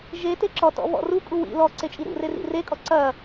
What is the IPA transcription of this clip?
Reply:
ʒ e t e ǁ ɔ t ɔ̰ β ɔ̰ r u kʼ u w ḭ l ɔ ǀ e t͡ʃʼ i ɾ ṵ r e r ḭ r e kʼ ɔ ǀ ɐ

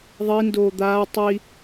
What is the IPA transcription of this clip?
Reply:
ðˤ i n d oː d̪ aː tˤ i

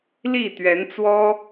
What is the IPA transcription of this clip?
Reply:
l i˥˨ t̪ ɥ ɛ˨˦ n t͡s w ɔ˦

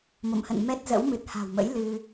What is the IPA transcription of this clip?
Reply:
m o̰˧˨ m h ə̰˧˨ n m ɛ˦˥ t̚ z ə̰˧˥ w m ɨ˨˩ t̚ h a̤˨˩ w m ə̰˧˥ j l ɨ˧

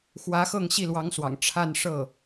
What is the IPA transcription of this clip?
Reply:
x w ä˧˥ x ɤ˥˧ ŋ ɕ i˥˩ l w ɑ˧˥ ŋ s w ɑ̰˨˩ ŋ ʈ͡ʂʰ a˥˧ n ʂ ɤ˥˩

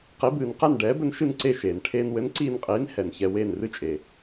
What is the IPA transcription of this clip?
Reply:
q i˩˥ b ɨː˩ n q ɛ˥˩ n ɖ ɛː˩˥ b ɘ˧ n ʃ ɨ˥˩ n ǀ e˥˩ ʃ eː˩ n ʈʰ eː˧ n w ɘ˩˥ n ǀ iː˧ n qʼ iː˩˥ n h ɛ˩ n ç ɛ˧ w eː˥˩ n r ɨ˥ t͡ʃʼ e˩

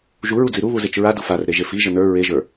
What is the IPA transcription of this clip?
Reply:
ʒ u ɹ u d͡z i ɾ u β u z e t͡ʃ ɹ a d u f a r ɾ e ʒ e f i ʒ ə n ə˞ ɹ e ʒ ə˞

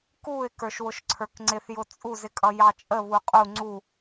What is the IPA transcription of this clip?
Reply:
k u ɪ̯ k ə˞ ʃ w ʊ ʃ ǀʰ ə˞ k ŋ͡ǀ ɪ θ j ʊ t͡sʼ u z ɪ kʼ ʌ j ɑ t͡ʃʼ ə β u qʼ u ŋ͡ǀ u

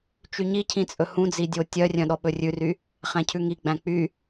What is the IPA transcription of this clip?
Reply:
t͡ʃ y ɲ i cʰ ĩ t͡sʼ ɵ h ũ d͡z i dʲ o tʲ œ rʲ œ̃ ɗ ɔ ɓ ɵ rʲ ʉ r y | χ æ̃ cʰ ʉ ŋ i ɡ͡b æ̃ k͡p y

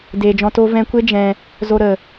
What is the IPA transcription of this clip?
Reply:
d eː˨ d͡ʒ ɔ̃˧ t o˦ v ɛ̃˧ kʷ e˦ d͡ʒ ɛ̃˧ | z o˧ ɾ ə˨

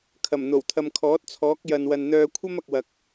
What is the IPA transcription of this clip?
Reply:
kʰ ɐ˨˩ m n̪ o˨˩ w t̪ʰ ɐ˨ m kʰ ɔː˨˥ t̚ t͡sʰ ɔː˨˥ k̚ j ɐ˨ n w ɐ˨ n n̪ œː˧ kʷʰ ɐ˥ m ɐ˨ k̚ w ɐ˨ k̚

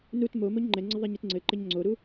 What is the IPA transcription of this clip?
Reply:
n u t m o m o ɲ ŋ͡ǃ ɛ ŋ͡ǀ ɘ ðˤ e ɲ e t ŋ͡ǀ ɘ ǃ ɘ ɲ ŋ͡ǀ o ɾ u

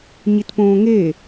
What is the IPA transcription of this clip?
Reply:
ɲ i t p õː ŋ e

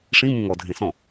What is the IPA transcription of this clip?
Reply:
ʂ ĩ m ũ ŋ ɔ dʱ ẽ s ɔ̃

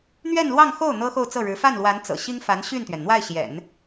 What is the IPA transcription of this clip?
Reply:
n̪ ɥ ɛ˥˧ n l w ɑ˥˧ ŋ x o˥˩ ʊ̯ n̪ ɤ˥ x o˥˧ ʊ̯ t͡s ɤ˥˩ ɻ ɻ̩˧˥ f a˥˩ n l w a˧˥ n t͡s ɤ̰˨˩ ɕ i˥ ŋ f a˧˥ n ɕ y˥˩ n t̪ ɥ ɛ˩ n n̪ w a˥˩ ɪ̯ ɕ j ɛ̰˨˩˦ n

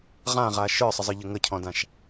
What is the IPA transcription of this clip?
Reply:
ʁ ã ʁ a ʃ ə˞ sˤ ə zˤ ə ʎ ə ŋ ə cʰ ɔ̃ d ã ʃ

